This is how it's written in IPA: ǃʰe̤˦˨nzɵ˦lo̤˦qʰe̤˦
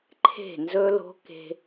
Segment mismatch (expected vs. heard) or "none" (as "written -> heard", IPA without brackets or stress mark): qʰ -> k